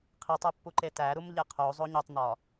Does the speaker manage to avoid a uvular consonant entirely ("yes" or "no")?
no